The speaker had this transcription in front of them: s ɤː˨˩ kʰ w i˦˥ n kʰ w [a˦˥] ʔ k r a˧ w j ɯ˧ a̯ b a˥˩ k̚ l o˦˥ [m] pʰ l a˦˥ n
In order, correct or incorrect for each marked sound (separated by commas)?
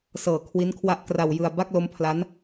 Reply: correct, correct